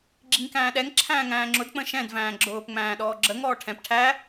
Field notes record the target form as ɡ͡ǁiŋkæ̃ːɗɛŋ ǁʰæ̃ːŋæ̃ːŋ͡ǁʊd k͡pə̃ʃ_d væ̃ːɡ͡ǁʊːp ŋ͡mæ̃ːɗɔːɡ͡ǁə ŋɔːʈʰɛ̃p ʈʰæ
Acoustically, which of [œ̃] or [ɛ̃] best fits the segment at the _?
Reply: ɛ̃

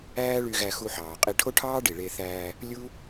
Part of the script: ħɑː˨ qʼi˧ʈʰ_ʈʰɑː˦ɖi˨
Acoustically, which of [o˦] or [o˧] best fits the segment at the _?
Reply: o˦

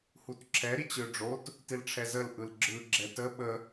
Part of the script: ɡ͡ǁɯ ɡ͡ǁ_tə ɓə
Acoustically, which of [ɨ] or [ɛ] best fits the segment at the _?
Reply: ɛ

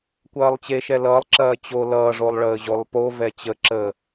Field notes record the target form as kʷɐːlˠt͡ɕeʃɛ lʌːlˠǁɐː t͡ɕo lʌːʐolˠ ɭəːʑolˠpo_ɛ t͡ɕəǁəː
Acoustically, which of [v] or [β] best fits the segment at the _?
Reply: v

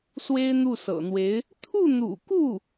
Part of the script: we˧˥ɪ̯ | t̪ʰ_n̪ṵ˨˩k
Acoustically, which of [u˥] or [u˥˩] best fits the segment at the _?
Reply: u˥˩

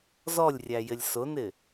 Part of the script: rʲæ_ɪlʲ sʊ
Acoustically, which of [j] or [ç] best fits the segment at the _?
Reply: j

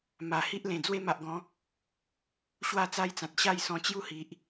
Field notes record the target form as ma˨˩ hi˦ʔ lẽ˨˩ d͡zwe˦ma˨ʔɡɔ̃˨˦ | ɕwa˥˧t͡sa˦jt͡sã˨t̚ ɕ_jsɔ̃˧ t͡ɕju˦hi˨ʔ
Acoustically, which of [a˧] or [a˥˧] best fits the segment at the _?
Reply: a˥˧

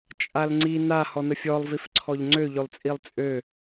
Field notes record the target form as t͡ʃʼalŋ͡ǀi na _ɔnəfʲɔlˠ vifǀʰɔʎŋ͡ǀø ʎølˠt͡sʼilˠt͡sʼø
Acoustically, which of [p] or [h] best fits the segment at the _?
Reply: h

